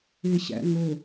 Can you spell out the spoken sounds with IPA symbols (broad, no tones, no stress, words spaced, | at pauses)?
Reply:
eɕæ̰ŋo